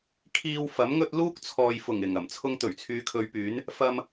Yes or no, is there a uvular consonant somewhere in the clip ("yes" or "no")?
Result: no